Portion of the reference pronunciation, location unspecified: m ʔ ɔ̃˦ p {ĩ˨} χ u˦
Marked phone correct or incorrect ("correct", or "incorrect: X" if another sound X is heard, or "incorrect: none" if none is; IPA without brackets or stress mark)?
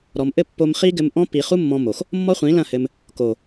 incorrect: i˨